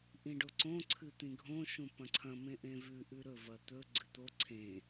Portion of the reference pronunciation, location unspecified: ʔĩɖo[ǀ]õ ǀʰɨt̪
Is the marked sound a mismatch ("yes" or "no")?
no